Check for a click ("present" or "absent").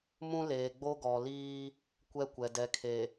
absent